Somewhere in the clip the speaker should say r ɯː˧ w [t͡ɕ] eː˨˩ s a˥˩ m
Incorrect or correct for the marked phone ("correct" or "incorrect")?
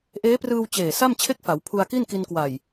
correct